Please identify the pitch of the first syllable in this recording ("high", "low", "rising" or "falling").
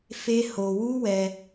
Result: high